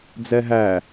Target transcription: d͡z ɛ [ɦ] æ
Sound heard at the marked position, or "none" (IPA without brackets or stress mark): ɦ